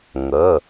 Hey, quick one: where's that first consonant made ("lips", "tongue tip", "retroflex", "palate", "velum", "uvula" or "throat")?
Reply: velum